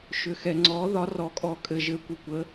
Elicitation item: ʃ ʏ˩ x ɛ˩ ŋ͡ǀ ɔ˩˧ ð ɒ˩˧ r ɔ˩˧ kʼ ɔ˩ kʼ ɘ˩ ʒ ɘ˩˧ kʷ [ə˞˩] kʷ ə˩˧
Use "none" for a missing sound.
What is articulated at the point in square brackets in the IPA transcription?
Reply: ə˩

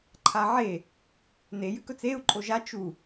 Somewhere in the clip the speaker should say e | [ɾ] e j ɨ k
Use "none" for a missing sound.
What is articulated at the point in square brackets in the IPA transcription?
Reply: n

